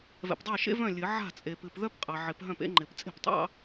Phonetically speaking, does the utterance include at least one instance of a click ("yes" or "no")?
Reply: yes